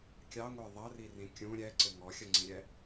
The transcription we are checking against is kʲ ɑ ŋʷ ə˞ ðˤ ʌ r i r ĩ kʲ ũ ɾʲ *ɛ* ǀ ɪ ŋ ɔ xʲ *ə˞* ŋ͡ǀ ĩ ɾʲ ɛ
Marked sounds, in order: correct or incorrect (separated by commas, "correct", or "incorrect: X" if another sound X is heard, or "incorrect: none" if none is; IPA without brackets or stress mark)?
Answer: correct, incorrect: ʌ